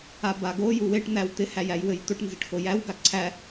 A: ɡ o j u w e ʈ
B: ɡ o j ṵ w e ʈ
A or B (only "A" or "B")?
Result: A